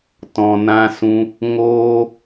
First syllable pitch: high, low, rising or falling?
low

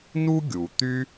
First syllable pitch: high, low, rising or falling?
high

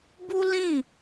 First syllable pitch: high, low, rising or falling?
high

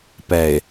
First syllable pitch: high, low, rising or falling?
low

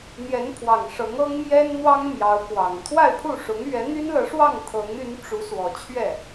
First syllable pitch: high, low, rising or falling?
rising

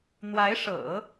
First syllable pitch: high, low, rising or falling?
rising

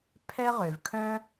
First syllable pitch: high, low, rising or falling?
high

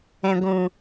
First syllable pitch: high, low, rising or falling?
low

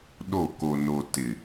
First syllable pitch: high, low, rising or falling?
falling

